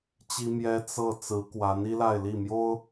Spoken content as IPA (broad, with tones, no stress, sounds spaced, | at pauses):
t͡ɕ i˥ m j ɛ˥ t͡s ɤ˥˩ t͡s ɹ̩˧˥ k w a˧˥ n i˥ l a˥˧ ɪ̯ l i˥˩ m j o˥ ʊ̯